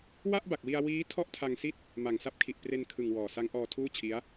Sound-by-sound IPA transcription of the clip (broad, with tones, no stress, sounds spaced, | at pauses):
w a˥˩ ʔ b a˨˩ k̚ w i˧ a̯ w iː˦˥ tʰ ɔ˥˩ ʔ tʰ a˧ ŋ s i˥˩ t̚ | m a˨˩ ŋ s a˦˥ p̚ kʰ i˨˩ ʔ p r e˧ n kʰ ɯ˨˩ ŋ w ɔː˨˩ s a˦˥ ŋ ʔ ɔː˧ tʰ uː˥˩ t͡ɕʰ i˦˥ a̯